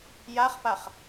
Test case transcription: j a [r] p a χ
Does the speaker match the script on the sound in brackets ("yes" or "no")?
no